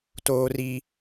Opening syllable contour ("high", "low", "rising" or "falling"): high